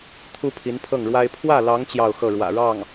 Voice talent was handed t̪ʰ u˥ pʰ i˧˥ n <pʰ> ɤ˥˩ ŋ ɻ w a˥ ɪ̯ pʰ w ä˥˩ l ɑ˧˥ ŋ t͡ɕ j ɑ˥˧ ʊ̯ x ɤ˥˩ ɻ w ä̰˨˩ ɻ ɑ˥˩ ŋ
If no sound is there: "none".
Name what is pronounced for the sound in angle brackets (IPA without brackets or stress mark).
pʰ